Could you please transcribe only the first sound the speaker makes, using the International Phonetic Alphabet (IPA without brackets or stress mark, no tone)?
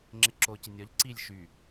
ŋ͡ǁ